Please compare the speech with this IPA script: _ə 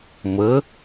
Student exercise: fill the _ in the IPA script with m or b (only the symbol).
m